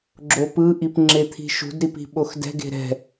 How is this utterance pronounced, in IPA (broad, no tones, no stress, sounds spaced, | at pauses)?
ɡ͡ǁ o p ɯ ʔ i p ŋ͡ǁ e t̪ʰ i̤ ʃ ṳ d ɾ i p i̤ ɓ o x d ɛ̤ ɡ e̤ ɾ ɛ̤